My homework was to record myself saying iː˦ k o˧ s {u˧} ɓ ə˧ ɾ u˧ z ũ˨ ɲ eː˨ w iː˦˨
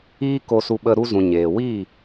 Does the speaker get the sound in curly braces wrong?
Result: no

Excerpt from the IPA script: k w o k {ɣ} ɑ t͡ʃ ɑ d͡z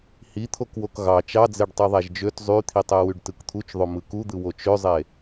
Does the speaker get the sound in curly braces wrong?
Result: no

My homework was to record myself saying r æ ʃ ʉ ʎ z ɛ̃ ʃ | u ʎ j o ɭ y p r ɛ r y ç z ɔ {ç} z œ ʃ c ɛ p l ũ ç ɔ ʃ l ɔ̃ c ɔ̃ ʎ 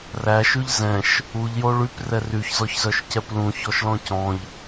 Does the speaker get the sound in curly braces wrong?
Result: no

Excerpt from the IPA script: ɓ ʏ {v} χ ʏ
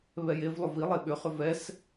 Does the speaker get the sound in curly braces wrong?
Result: yes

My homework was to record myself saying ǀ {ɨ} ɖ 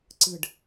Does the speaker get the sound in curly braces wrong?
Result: no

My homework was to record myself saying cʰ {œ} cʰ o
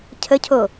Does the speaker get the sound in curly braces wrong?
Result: yes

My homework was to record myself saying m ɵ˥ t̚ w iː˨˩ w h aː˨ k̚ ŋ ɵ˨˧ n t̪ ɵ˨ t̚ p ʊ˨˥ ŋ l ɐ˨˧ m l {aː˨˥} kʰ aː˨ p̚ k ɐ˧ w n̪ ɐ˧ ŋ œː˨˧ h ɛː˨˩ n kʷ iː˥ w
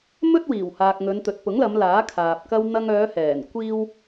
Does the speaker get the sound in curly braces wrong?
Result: no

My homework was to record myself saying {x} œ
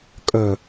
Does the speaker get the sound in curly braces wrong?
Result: yes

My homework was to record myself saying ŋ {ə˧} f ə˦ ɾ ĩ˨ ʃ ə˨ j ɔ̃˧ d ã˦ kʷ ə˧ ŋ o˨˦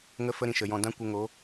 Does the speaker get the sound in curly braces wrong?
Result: yes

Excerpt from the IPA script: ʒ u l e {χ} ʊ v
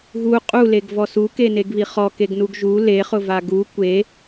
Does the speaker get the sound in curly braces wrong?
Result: no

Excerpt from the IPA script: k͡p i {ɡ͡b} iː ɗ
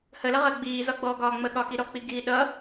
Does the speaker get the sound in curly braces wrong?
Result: yes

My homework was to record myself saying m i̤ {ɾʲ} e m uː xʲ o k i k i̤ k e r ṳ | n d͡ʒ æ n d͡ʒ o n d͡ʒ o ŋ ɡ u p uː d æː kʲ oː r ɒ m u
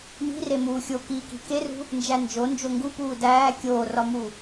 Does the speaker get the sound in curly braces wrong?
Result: yes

